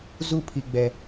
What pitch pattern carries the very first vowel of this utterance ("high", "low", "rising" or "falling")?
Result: falling